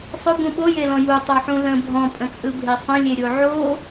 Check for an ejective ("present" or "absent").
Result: present